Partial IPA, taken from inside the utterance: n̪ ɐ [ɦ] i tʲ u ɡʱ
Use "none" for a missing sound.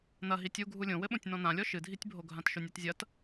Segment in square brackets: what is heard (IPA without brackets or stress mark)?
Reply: ɦ